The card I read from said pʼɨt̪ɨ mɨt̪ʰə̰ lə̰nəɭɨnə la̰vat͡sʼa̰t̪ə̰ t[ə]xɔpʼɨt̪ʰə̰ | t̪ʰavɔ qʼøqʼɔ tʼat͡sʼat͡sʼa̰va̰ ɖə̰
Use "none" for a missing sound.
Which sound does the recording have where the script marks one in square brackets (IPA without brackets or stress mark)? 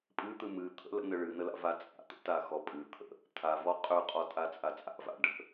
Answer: a